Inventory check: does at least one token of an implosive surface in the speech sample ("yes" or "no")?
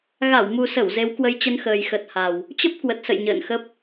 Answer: no